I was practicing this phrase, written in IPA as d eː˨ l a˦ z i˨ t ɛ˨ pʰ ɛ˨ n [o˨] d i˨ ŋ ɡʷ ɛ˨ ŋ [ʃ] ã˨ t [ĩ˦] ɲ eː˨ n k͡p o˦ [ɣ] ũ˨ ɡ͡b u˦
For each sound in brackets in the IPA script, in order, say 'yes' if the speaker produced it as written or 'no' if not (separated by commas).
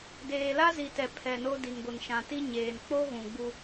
no, yes, no, yes